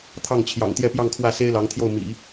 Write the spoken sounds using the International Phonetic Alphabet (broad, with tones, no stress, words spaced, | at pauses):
t̪ʰɑ˥˩ŋt͡ɕʰjɑ̰˨˩ŋ t̪jɛ˥˧pjɑ˥˧ŋkʰwä˥˩ se˥ɪ̯lɑ˧˥ŋt̪ʰjo˥˩ʊ̯ mḭ˨˩˦